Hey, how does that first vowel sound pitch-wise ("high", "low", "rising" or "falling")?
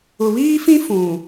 low